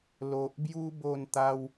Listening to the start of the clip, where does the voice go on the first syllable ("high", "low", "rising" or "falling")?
low